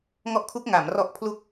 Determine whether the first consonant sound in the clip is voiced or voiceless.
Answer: voiced